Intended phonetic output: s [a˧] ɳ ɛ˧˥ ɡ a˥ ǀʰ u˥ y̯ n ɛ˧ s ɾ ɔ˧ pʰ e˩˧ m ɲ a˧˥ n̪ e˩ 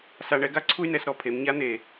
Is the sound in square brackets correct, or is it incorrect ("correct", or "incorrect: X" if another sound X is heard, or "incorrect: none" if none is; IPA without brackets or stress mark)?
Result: correct